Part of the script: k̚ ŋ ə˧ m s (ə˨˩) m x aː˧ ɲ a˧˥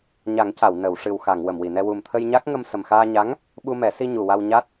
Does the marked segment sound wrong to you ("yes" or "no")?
no